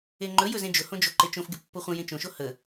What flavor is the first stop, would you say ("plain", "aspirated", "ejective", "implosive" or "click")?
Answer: click